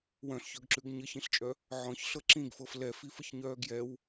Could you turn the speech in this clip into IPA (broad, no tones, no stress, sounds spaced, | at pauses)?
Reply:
w œ̃ ɬ ç œ ɡ ǁ ʉ ɡ ɲ ə ç ĩ ɬ t͡ʃʼ œ | ʕ ɔ̃ ç ɬ ɤ ǁ ĩ ɡ f ɤ f l ɛ f i f ə ç ɲ œː ɡ j ɛ w